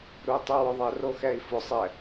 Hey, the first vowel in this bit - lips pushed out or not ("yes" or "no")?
yes